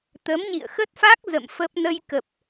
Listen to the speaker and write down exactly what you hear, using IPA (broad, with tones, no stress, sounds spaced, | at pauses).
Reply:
t̪ ə˨˦ m ɲ ḭ˧˨ ə̯ x ə˦˥ t̚ f a˦˥ k̚ z ə̰˧˨ m f ə˦˥ p̚ n ə˧ j k ə˨˩ p̚